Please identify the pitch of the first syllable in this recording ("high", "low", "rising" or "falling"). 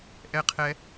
high